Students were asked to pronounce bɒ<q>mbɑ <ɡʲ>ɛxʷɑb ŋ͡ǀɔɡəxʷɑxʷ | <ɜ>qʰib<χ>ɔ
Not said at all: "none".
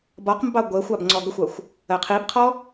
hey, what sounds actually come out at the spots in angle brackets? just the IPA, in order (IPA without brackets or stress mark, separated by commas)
q, ɡʷ, ɜ, qʰ